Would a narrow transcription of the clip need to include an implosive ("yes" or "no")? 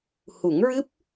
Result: no